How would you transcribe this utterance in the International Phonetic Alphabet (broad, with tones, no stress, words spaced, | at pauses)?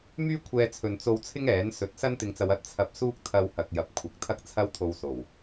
myː˥kʷʰɛː˧t͡sʰɵ˨n t͡so˧wt͡sʰɪ˥ŋ ɛː˨˥n sɵ˨˥t̚sɐ˥n t̪ɪ˧ŋt͡sɐ˧w ɐ˥t̚ t͡sʰɐ˧p̚ suː˥k̚t̪ʰɐ˧w hɐ˨k̚jɐ˨p̚ kʷʰɐ˨˥k̚t̪ʰɐ˥k̚t͡sʰɐ˥w t̪ʰo˧wso˨˩w